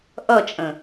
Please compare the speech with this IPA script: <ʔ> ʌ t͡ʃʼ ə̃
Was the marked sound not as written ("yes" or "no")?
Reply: no